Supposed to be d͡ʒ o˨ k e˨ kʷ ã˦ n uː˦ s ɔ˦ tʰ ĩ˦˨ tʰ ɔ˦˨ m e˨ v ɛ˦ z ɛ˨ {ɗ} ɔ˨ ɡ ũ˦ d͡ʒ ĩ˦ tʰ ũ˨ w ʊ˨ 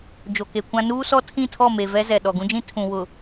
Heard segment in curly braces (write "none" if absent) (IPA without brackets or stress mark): ɗ